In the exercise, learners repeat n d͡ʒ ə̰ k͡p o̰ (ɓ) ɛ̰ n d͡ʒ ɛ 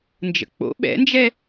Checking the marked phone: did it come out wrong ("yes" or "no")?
no